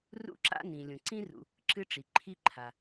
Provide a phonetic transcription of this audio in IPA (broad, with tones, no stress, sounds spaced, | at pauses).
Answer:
r ṵ˦ ǁ a̰˦ n ĩ˩ lʲ ũ˩ ǀ ĩ˥ r ṵ˨ | ǁ ɨ˦ ʈ͡ʂ i˩ ǃʰ i˦ ǃʰ a˩